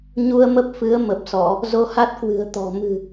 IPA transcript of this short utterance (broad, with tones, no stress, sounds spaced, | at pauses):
ɲ u˧ ə̯ m ə˦˥ p̚ f ɨ˨˦ ə̯ m ə˨˩ p̚ s ɔ˧˩˨ | z o˧ h a˦˥ t̚ k w ɨ̤˨˩ ə̯ t̪ ɔ̤˨˩ m ɨ̤˨˩